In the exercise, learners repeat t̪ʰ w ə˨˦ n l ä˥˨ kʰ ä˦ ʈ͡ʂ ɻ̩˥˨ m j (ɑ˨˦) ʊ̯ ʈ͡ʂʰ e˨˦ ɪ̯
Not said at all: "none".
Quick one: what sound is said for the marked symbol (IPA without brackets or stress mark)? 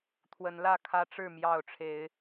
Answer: ɑ˥˨